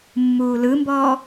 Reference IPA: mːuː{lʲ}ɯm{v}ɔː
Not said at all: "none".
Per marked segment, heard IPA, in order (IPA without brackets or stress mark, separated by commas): l, b